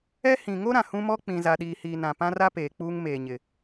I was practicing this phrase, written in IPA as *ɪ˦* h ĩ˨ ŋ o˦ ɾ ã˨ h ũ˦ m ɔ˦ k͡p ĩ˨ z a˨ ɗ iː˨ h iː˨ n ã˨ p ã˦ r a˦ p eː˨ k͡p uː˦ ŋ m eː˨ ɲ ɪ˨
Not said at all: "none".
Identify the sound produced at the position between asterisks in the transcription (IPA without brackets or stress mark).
ɛ˦